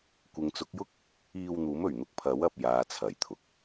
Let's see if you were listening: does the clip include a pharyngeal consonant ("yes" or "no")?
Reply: no